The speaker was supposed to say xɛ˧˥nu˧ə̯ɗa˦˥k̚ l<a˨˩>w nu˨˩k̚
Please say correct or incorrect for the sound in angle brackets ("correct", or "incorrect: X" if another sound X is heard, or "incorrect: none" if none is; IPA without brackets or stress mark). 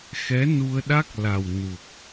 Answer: correct